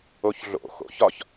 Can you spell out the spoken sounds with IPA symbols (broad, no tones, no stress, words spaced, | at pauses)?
oçɮo̰ xo̰ç ɒç